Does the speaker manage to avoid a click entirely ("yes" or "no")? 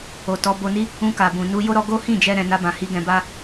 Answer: yes